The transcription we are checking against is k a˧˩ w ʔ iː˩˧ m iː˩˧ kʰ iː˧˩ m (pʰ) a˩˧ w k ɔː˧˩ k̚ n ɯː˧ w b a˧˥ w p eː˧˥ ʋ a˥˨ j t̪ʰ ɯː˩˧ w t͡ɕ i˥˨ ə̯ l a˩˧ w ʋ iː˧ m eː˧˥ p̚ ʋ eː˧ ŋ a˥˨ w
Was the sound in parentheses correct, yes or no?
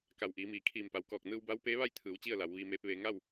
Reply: no